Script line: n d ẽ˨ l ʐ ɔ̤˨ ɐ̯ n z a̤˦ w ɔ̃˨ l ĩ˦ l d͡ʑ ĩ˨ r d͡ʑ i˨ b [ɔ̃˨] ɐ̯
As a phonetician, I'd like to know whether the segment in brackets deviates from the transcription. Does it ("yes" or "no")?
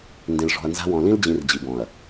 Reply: no